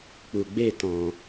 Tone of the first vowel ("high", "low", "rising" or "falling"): low